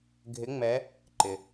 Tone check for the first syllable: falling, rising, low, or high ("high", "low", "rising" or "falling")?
rising